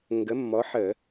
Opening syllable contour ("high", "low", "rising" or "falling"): rising